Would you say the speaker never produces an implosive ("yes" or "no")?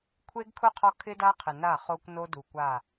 yes